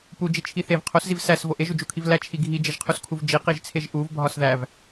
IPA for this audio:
p u d͡ʒ i t͡ʃʰ i θ e v qʰ o s z i v s æ s v o ʔ e ʒ u d͡ʒ u kʰ i v l æ t͡ʃʰ i ɡʱ i d͡ʒ e ʒ qʰ u s kʰ u v d͡ʒ i q i ʒ t͡sʰ e ʒ ʔ u v bʱ ɒ s ð æ v

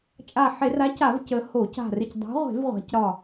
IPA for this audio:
t͡ʃʼ a˧˩ ħ e˧˩˧ r a˨˥ c a˧˩˧ v c ə˩˧ h o˧˩˧ c a̤˧˩ r ɪ˧˩ c dˤ a̤˨˥ ʁʷ e̤˧˩˧ v ʁʷ a̤˩˧ c ɾ ɒ˧˩

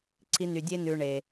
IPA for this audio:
ǀʰ i˧ n y˨ dʲ e˧ n ʉ˨ ɳ e˨

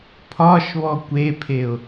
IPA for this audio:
pʰ ɒ ʃ β ɔ kʷ e pʰ e ʊ̯

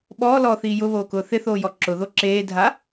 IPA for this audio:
ɓ ɔː l ɔː θ iː j ʊ β oː k ʊː θ ɪ θ oː j ɔ ǁ ʊ ð o ǁ eː dʱ a

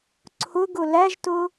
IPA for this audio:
ǀʰ ʊ ɡ ʊ l æ ʒ t ʊ

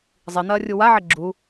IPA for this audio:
zˤ i n̪ ɐː rʲ u w a ʕ e ɡ͡ǁ u

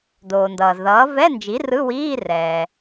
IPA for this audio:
d oː˩ n d ʌː˩ z ð ʌː˩˥ v ɛ˧˥˧ n d͡ʒ i˩˥ r ɯ˧˥˧ w iː˧˥˧ r ɛː˩

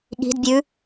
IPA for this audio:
ɠ i̤ d bʲ ʉ

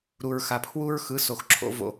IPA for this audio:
ɾ u˨ ɹ x a˨ pʰ w u˦ ɹ x ɯ˨˦ s o˨ x ǁʰ o̰˦ v o̰˦

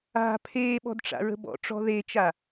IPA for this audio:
a̤ pʰ eː ɓ ɔ̤ d ʈ͡ʂ a̰ ɹ ə̤ b ɔ̰ ʈ͡ʂ ɔ̤ ð e t͡ʃ a

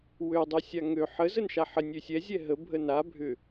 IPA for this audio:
w ø dˤ ø sʲ a ŋ ø ħ ə z ə n ʃ a ħ ə nʲ ø sʲ ɛ zʲ ɛ ɦ ə bʱ ə n a bʱ ʏ

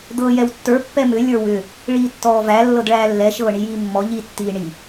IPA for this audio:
d̪ ɤː j ɛ w tː ə˞ pː ɛ m ʏ lʲ ə˞ w ʏ | ɭ iː tː ɔː v æ lː ɤ d ɭ æː lː ɛ ʃ ɤː ɳ i j iː mː ɔ ʎ i tː iː ɳ i

